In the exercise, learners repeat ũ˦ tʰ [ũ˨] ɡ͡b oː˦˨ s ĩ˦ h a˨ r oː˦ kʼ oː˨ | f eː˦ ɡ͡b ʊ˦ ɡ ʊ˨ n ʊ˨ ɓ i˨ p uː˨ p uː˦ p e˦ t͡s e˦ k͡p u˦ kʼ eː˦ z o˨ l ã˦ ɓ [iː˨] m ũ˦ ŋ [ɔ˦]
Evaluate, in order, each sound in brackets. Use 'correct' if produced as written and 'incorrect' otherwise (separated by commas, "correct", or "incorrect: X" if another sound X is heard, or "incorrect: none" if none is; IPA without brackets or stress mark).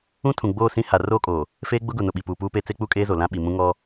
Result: correct, incorrect: i˨, correct